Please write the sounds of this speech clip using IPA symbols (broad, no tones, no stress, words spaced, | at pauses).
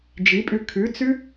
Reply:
d͡ʒipʼʉ kʰʉt͡sʉ